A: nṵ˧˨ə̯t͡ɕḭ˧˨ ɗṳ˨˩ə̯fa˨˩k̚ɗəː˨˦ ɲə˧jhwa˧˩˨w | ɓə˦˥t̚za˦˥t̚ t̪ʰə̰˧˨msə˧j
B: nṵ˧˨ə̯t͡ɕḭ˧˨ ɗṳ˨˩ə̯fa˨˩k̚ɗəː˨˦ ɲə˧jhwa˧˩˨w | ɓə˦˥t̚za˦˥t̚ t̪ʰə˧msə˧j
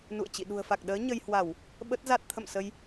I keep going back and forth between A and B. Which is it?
A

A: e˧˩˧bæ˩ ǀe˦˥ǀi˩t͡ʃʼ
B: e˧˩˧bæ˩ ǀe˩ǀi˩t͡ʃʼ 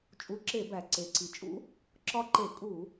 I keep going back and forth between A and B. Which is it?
B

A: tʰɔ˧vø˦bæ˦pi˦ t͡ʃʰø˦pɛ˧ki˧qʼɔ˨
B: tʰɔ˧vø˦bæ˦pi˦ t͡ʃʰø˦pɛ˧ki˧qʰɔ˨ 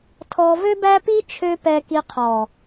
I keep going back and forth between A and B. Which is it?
B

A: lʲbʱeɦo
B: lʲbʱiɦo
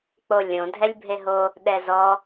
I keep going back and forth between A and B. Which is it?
A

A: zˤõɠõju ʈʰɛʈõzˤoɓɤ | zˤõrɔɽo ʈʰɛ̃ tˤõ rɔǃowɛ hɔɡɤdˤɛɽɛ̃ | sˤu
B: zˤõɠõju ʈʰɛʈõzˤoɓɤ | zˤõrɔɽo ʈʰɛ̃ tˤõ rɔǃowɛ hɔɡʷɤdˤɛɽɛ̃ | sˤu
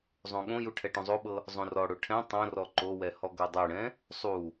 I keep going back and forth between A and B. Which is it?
A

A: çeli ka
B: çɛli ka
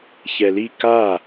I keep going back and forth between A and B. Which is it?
B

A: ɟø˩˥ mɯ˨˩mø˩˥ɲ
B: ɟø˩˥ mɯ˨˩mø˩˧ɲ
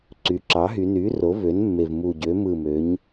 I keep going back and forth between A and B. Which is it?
B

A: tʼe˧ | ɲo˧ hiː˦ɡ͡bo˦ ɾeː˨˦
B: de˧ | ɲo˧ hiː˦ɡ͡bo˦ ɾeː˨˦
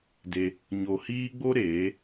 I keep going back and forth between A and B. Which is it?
B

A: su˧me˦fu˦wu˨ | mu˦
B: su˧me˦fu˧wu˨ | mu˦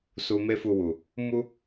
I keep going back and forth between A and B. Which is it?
B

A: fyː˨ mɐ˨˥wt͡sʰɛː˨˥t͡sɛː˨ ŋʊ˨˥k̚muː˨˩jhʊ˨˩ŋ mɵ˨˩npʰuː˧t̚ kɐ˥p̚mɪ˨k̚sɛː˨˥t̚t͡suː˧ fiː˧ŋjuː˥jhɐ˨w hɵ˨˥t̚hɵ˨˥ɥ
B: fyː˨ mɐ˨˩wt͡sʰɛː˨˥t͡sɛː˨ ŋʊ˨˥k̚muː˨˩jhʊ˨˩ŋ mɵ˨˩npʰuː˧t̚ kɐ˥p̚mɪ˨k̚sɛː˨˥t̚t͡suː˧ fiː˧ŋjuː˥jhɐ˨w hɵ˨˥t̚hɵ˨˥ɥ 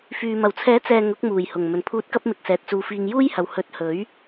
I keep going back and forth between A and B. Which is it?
B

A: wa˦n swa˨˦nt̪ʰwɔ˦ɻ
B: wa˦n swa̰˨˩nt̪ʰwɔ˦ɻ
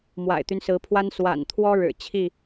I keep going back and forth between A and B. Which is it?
B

